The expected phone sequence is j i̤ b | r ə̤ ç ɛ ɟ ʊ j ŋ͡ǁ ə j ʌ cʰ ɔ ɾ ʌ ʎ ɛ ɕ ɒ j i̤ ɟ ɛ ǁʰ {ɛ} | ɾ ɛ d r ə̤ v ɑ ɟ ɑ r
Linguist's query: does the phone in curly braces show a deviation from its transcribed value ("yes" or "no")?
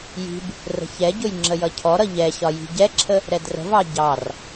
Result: yes